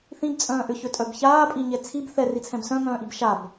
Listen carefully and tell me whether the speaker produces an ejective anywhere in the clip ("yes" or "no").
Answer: yes